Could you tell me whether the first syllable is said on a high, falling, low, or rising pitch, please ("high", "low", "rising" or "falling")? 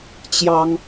high